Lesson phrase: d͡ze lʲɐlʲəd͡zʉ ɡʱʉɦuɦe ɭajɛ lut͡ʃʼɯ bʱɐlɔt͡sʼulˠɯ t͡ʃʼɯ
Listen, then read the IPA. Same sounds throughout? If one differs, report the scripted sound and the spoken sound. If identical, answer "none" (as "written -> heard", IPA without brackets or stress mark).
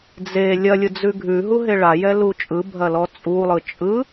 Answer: ə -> ɯ